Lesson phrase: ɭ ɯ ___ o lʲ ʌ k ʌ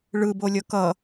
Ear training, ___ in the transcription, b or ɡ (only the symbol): b